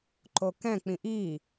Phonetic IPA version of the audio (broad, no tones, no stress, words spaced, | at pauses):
ǃokɛ̃ k͡pĩʔiː